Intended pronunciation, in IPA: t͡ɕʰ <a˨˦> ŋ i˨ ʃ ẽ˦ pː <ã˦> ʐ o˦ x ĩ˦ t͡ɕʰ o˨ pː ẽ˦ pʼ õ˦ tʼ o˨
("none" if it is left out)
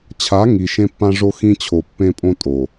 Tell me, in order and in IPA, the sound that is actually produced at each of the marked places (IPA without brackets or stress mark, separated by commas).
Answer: a˨˦, ã˦